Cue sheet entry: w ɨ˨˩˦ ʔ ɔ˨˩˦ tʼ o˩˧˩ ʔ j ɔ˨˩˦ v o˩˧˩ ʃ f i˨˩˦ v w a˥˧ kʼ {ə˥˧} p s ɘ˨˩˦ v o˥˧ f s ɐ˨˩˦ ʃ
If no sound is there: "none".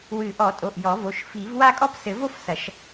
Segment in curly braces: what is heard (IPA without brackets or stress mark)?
ɔ˥˧